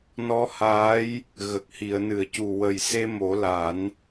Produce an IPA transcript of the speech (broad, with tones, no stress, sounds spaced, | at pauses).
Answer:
n ɔ˧˥ h aː˧˥ j | ɣ ə˨˩ k̚ h i˨˩˨ ə̯ n ɨ˨˩˨ ə̯ c u˨˩ w ə˨˩ j s e˧ m o˨˩˦ l a˨˩˦ n